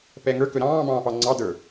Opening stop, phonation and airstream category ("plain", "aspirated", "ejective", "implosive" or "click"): plain